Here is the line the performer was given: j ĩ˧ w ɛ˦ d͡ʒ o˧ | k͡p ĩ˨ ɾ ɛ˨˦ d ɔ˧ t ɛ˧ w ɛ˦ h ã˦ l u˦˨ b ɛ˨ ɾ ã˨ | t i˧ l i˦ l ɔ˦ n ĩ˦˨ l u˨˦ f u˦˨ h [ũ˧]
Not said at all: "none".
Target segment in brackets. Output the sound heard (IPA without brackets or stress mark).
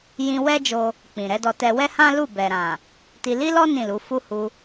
u˧